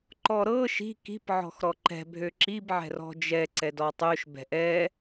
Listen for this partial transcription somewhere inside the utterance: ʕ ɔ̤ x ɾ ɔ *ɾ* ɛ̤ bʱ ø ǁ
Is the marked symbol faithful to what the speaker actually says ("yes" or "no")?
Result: no